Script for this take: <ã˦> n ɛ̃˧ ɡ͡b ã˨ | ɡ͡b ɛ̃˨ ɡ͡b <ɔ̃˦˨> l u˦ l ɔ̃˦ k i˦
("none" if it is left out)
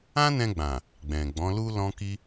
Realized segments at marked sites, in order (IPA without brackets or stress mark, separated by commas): ã˦, ɔ̃˨˦